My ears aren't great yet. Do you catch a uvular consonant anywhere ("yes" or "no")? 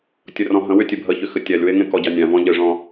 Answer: no